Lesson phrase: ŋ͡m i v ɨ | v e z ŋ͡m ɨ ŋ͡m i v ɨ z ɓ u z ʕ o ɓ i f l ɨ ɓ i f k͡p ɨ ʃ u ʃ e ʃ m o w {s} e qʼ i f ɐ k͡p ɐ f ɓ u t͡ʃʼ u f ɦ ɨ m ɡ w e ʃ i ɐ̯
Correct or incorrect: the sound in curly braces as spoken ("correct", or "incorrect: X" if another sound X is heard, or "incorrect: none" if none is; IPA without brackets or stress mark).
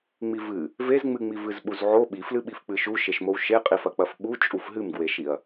incorrect: ʃ